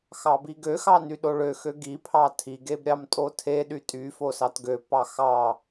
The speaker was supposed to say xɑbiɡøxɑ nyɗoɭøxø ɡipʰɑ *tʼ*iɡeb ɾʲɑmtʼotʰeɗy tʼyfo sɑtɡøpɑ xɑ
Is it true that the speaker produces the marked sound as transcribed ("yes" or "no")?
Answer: no